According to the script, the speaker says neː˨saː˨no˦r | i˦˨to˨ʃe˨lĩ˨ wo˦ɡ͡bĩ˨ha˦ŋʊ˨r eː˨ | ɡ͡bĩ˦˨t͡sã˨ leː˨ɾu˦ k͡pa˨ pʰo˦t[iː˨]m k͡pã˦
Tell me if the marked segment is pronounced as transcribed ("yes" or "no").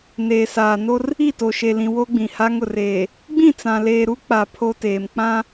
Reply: no